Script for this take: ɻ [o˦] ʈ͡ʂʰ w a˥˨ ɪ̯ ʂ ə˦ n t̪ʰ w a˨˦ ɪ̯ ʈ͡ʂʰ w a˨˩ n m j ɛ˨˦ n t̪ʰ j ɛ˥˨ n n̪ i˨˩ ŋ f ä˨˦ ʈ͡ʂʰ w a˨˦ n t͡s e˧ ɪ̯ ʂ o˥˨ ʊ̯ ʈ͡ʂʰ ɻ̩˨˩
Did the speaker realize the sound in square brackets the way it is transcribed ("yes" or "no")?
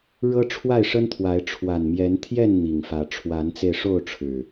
no